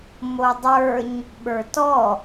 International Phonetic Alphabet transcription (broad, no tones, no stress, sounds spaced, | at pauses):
m o dˤ ə˞ ɲ | ɓ ə˞ t ɔ